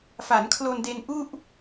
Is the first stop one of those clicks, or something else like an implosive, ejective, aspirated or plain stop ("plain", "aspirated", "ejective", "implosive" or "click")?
aspirated